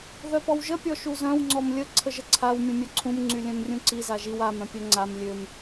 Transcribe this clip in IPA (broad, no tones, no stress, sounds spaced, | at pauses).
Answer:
ð œ p ɔ w ʒ ə pʲ ɔ ʃ u z œ̃ w ŋ͡ǀ ɔ m lʲ ə ǀʰ ə ʒ ə ǀʰ a w mʲ ũ mʲ œ ǀʰ ũ m ŋ͡ǀ y lʲ œ̃ m rʲ ũ ǀ i z a ʒ i w a m œ̃ pʲ œ ŋ͡ǀ a m lʲ ø m